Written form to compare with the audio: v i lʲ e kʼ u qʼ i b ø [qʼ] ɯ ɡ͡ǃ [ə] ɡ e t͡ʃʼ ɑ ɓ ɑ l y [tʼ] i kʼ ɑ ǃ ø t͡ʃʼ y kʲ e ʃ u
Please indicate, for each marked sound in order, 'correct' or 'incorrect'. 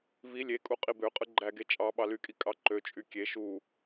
correct, incorrect: æ, incorrect: kʼ

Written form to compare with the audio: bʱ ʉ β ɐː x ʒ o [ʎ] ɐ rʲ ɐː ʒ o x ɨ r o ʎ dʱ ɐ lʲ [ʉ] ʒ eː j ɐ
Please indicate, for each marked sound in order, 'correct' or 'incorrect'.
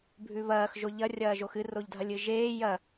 correct, incorrect: ɨ

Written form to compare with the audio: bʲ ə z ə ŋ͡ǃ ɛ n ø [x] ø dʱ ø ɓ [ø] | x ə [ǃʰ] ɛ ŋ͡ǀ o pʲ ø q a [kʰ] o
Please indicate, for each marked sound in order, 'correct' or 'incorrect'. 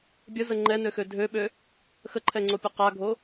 correct, correct, correct, incorrect: ɡʱ

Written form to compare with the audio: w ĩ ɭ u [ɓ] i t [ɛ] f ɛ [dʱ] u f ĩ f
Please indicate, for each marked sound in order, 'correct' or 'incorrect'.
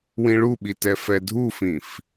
correct, correct, correct

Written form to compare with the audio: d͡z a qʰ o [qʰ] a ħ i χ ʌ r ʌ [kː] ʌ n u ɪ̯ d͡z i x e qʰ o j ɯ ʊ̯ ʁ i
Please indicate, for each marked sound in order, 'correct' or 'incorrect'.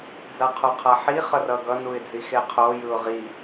correct, incorrect: ɡ

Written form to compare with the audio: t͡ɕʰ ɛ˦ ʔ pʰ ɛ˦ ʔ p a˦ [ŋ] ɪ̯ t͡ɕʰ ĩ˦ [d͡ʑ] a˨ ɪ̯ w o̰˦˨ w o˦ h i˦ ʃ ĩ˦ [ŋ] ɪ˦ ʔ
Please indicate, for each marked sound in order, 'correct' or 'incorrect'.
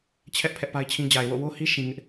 incorrect: none, correct, correct

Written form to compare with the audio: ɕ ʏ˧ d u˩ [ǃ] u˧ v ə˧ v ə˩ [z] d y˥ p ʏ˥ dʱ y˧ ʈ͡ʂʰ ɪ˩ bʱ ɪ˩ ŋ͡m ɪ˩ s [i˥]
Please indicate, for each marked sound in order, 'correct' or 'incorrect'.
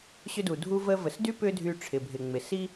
incorrect: dʱ, incorrect: s, correct

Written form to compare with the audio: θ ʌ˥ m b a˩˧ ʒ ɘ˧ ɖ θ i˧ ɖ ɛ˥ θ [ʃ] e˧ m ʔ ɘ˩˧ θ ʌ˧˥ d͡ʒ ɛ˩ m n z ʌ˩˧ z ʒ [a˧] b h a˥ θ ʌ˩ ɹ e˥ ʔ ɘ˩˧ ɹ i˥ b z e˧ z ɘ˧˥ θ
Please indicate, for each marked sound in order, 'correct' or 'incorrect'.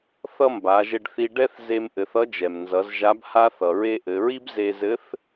incorrect: z, incorrect: a˧˥

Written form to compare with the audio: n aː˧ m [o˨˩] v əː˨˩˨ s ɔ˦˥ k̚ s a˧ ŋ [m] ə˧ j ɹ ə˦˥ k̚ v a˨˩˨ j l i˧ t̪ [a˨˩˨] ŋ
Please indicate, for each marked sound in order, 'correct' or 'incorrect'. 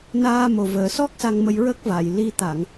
correct, correct, correct

